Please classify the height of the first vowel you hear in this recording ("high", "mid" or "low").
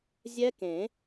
mid